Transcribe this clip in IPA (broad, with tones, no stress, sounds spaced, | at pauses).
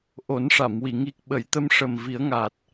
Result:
ʔ o˨˩˦ n ʂ a˨˩˨ m w i˨˩˨ ŋ i˨˩ k̚ ɓ ə˨˩˨ j t̪ ə˧ m ʂ ə˨˩ m v i˨˩˦ ə̯ ŋ aː˨˩ t̚